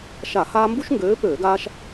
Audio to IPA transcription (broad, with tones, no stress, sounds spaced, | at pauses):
ʃ a˧˩˧ h aː˦ m b u˦ ʃ ŋ ɡ øː˨˦ p øː˧˩˧ ɡ aː˦ ʃ